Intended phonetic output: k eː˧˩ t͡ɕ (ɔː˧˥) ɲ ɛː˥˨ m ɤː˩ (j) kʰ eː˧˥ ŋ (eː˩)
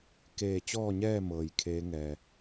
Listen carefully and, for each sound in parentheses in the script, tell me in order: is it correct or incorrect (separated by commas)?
incorrect, correct, incorrect